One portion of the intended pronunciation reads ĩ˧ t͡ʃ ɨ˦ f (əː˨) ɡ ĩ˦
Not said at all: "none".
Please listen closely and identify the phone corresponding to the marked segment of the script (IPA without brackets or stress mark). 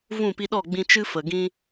ə˨